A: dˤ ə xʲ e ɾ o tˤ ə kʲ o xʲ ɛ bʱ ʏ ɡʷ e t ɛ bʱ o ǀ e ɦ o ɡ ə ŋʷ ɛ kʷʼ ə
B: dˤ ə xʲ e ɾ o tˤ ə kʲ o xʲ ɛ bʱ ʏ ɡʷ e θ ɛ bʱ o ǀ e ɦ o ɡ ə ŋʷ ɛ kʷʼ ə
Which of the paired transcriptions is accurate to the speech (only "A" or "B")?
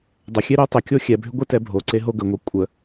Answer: A